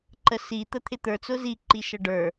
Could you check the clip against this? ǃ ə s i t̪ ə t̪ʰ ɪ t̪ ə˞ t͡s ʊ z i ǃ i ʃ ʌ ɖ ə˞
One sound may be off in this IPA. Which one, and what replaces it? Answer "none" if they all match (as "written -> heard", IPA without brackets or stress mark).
none